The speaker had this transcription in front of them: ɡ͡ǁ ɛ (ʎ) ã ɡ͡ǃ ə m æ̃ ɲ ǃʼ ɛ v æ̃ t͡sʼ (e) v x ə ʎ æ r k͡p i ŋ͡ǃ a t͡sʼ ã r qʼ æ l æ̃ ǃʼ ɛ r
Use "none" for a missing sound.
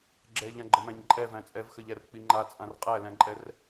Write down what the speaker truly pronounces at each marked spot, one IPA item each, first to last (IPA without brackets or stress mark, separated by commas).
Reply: ʎ, ɛ